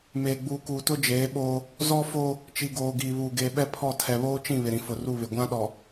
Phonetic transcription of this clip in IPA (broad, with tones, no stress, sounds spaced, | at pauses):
m eː˨ ɡ͡b uː˨ k uː˨ t ʊ˦ d͡ʒ eː˨˦ ɓ oː˦ | z ɔ˦ f oː˦ | t͡ʃ i˨ ɡ oː˨ ɡ iː˨ β uː˨ ɡ eː˨ ɓ ɛ˦ pʰ ɔ˦˨ tʰ ɛ˨ β oː˦ t͡ʃ ĩ˦˨ β ɪ˨ ɾ ĩ˨ f ʊ˨ r u˦˨ β ɪ˨ ɡʷ ã˦ ɗ ɔ˨